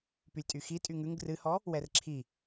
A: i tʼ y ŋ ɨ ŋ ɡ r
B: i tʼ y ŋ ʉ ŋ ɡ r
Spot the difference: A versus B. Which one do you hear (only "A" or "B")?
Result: B